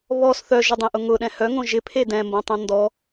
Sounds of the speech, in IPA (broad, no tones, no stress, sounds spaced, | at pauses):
β ɔ s θ œ ʒ ʊ dˤ ẽ ʔ ʊ ŋ ʊ ɗ ɛ̃ h œ ŋ õ ʒ ɪ pʰ e d ɛ̃ m b õ tˤ õ n d ɔ